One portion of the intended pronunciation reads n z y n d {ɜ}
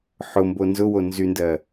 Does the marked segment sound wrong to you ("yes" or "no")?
no